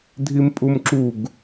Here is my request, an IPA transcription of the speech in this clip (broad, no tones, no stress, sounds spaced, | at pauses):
dʱ i m pʼ u m ǁ u ɡ